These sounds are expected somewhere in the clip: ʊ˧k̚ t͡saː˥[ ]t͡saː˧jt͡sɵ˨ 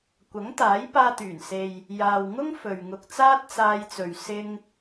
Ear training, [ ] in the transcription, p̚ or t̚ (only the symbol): t̚